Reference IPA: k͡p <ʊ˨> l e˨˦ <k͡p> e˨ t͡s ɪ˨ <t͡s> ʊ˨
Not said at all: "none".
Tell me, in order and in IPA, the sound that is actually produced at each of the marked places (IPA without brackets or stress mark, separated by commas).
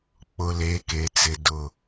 ʊ˨, k, d